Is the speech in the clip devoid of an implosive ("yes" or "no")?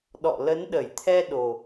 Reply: no